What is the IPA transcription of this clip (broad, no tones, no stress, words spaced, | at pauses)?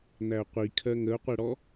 n̪æʊ̯qʷi kʰɜŋəʊ̯qʷɜɽɔ